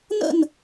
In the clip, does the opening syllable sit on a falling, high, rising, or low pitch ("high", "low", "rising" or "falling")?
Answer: falling